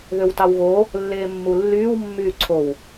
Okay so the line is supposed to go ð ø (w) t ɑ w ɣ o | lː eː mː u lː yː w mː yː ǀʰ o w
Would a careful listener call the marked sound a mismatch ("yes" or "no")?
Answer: no